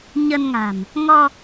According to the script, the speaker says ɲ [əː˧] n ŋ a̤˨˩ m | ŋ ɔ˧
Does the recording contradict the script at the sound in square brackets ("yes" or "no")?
yes